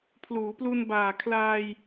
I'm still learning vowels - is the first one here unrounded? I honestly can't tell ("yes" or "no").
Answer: no